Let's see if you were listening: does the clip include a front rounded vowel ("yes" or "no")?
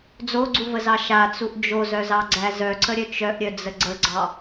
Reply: yes